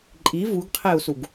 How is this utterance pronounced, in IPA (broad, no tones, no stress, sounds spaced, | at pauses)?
ǃʼ i v u ɡ qʰ e u̯ s u ɡ